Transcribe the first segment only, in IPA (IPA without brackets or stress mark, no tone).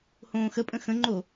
h